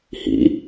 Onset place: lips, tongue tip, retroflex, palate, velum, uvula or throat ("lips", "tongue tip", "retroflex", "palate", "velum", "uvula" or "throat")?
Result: throat